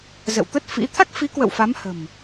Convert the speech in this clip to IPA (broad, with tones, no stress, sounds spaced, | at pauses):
z ə̰˧˨ w t̪ ə˦˥ t̚ f ḭ˧˥ t̪ʰ a˦˥ k̚ f i˨˦ k w ə̰˧˨ w f a˨˦ m h ə̤˨˩ m